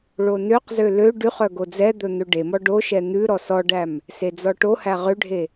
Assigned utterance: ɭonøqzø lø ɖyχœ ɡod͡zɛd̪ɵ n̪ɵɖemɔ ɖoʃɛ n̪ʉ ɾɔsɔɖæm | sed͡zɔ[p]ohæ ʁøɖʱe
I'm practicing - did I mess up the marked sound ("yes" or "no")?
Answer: yes